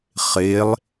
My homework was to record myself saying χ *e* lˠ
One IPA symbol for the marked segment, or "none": e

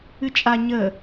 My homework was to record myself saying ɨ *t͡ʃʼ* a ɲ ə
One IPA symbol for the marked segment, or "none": t͡ʃʼ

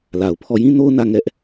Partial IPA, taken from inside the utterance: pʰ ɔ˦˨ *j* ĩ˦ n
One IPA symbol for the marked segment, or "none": j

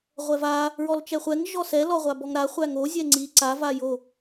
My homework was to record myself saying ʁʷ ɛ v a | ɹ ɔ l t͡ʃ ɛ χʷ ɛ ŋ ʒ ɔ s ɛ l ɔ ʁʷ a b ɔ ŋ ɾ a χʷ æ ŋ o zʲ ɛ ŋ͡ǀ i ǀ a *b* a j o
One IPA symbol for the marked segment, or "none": v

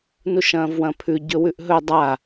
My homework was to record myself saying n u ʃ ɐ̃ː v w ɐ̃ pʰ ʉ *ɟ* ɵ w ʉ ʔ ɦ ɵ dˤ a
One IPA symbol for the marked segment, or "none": ɟ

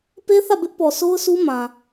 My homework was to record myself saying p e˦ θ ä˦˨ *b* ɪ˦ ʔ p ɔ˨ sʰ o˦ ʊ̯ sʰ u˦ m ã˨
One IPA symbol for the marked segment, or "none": b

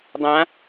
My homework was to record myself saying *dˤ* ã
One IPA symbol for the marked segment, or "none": dˤ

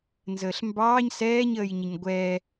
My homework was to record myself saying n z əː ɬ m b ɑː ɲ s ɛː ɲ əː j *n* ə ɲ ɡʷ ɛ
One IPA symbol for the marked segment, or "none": ɲ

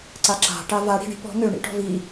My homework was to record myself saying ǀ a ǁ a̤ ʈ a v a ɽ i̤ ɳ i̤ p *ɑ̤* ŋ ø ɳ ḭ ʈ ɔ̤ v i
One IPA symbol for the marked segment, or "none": ɔ̤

